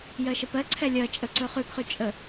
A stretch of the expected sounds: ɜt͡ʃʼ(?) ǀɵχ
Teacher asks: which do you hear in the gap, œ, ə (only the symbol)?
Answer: ə